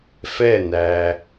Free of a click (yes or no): yes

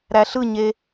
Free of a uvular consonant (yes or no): yes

